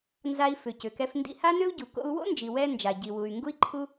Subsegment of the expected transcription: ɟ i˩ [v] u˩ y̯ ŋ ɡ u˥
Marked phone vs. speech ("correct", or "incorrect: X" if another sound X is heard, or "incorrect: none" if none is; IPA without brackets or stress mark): incorrect: w